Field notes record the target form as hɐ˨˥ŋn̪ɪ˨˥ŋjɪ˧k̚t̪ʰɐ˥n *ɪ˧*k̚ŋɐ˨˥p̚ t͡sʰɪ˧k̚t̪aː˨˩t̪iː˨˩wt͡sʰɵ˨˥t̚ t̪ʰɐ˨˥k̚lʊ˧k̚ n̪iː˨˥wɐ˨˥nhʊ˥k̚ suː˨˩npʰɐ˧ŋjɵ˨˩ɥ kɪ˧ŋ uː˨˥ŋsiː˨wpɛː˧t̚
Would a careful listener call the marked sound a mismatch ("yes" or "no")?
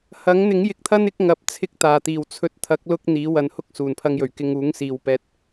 yes